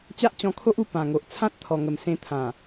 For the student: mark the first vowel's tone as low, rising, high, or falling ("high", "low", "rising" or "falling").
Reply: high